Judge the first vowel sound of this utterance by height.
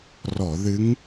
mid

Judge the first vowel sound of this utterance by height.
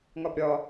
low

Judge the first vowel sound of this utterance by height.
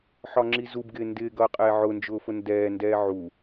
low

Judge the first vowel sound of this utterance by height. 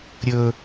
mid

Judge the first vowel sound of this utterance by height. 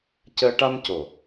mid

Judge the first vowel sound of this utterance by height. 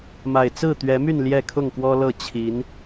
low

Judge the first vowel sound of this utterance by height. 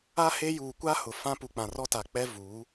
low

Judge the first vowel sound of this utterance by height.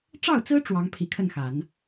low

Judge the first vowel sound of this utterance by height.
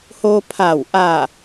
mid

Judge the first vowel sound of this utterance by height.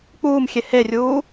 high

